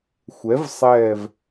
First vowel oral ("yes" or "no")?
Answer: yes